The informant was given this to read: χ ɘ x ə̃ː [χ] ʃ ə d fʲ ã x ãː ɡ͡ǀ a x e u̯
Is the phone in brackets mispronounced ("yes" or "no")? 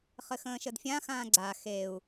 yes